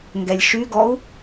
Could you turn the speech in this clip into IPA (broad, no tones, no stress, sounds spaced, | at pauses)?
ŋ ɡ ɛ lʲ ʃ y ɡ ɔ u̯